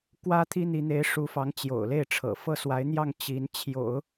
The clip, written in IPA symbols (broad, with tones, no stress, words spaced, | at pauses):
kwä˥t̪ʰi˥n̪i˧˥ n̪e˧˥ɪ̯ʂu˧˥fɑ˧˥ŋ t͡ɕjo̰˨˩ʊ̯le˥˩ɪ̯ʈ͡ʂʰɤ̰˨˩ fɤ˥˩swa˧˥ɪ̯n̪jɑ˥˩ŋ t͡ɕi˧˥n t͡ɕʰjo̰˨˩˦ʊ̯